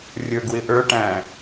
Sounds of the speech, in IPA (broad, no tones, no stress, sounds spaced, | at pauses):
rʲ ə˞ ɡ w ɪ ʔ ə˞ ʈ æ̃